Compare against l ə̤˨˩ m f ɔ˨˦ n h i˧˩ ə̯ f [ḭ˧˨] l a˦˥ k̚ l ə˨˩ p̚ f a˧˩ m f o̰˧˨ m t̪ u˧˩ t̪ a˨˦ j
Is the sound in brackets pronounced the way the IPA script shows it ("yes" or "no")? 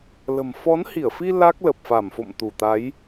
no